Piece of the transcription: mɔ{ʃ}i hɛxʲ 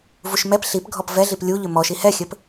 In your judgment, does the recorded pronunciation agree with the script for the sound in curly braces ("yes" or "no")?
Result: yes